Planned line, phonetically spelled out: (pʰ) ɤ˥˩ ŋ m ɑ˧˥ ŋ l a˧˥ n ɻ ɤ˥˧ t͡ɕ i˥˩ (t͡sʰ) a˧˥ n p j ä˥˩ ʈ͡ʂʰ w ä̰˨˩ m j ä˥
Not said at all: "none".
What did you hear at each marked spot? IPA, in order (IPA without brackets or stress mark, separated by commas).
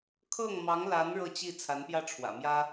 kʰ, t͡sʰ